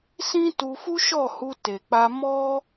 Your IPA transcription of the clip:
s ĩ˦ t u˧ f u˦ ʃ ɔ˦˨ h u˧ t e˨ k͡p a˧ m ɔ˦

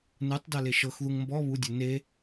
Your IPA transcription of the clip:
n ɯ tˤ d a l e ʃ ɤ x ð u ŋ m b ɔ β u dʲ o n e

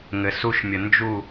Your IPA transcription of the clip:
ŋ ɘ s u ʃ mʲ ə n d͡ʒ u

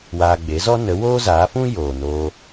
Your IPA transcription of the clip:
w aː˧ ɡ͡b e˨˦ z ɔ˦ n ə˨˦ w oː˦ z aː˨˦ f ũ˦ j oː˨ n oː˧

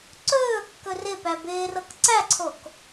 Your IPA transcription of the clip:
ǀ ɵː kː ɵ r ɪ p æ b ɪː r ɤ k ǀ æ ǀʰ o k

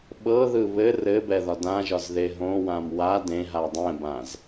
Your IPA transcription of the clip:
ɓ ɤ ð ɯ β ɘ r ɘ b ɛ ð ɒ d ã ʒ ɒ z ð e ɦ õ w ã m w a d ẽ ɦ a dˤ ɛ̃ b ã z

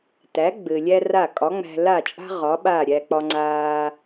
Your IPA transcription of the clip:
t æ˩˥ ɡ͡b ɘ˩ lʲ æ˥ r a˥˩ kʼ ɒ˩˥ ŋ͡m æ̤˧ l a˥˩ t͡ʃʼ a̤˥ ʁ ɒ˩˥ ɓ aː˥˩ ɾʲ æ˧ k͡p ɒ˧ ŋ͡ǀ aː˧

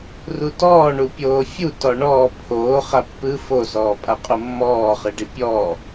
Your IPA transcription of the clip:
r u t ɔː ɳ u pʲ oː fʲ u t ɔ ɳ ɔː pʰ oː χ a pː ɯ f o s ɔː pʼ a qʼ u mː ɔː χ ɯ ɖ i pʲ ɔː

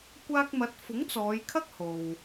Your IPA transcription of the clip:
kʷ aː˧ k̚ m ɐ˨˥ t̚ f ʊ˨˥ ŋ t͡s ɔː˨˧ j kʰ ɐ˥ k̚ h o˨ w

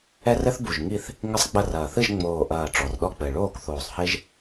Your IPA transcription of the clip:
ɛ˦ r ɘ˦ θ b u˨˩ ʒ ŋ i˦˨ θ | ŋ ɘ˦ sˤ ɡ͡b ɐ˦˨ r ɐː˨˩ θ ɨ˦˨ ʒ ŋ͡m oː˨˩ ʔ ɐː˨˩ ʈ͡ʂ ɔ˩˧ r ɗ ɔ˦˨ k͡p ɘ˨˩ ɭ oː˦˨ k θ oː˨˩ sˤ h e˦ ʒ

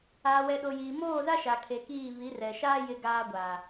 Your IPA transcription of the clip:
aː˨ w ɛ˨ ɗ o˨ j iː˨ m oː˦˨ z a˦ ʃ a˨ kʰ e˨ k iː˦˨ β i˨˦ r ɛ˨ ʃ aː˦ j ɪ˦ ɡ aː˦ ɡʷ aː˨

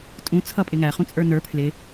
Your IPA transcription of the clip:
tʼ ũ t͡sʰ ʌ pʼ ɪ ŋ æ χ ũ t͡sʼ ə˞ n ə˞ pʰ l ɪ

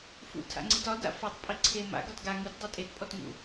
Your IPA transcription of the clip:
f ṵ tʰ a̰ ŋ͡ǀ i t ɒ d a̰ f ɒ tˤ pʼ i ǀʰ e m a̰ ɡ ɒ t ɡ a ŋ u t dˤ e tʼ e t pʼ ɔ t ŋ ṵ

